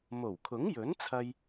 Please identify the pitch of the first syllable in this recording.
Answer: low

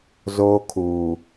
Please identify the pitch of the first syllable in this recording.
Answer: high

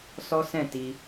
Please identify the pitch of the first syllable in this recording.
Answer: high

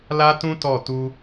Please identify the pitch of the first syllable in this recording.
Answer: high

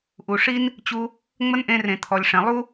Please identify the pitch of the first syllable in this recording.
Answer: low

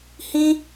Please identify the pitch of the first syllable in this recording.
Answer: high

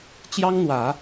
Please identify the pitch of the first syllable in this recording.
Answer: high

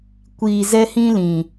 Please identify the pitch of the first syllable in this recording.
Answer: low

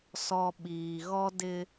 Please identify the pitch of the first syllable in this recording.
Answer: low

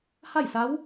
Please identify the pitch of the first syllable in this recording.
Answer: falling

